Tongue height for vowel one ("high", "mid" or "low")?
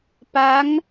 low